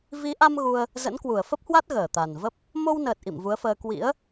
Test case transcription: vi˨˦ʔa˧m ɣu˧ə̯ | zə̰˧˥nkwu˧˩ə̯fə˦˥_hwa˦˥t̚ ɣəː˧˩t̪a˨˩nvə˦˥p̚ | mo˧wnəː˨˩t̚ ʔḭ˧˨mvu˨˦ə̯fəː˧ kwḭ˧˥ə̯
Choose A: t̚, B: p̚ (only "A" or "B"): B